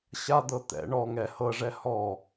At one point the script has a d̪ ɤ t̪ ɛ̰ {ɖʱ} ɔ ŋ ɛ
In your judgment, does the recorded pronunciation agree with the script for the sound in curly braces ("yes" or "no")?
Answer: no